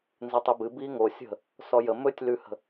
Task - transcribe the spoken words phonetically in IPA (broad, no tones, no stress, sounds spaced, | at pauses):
n z ɨ tˤ i b ɨ b i ŋ o sʲ ə̤ | s ɔ j ə m ɵ tʲ l ʉ h ə̤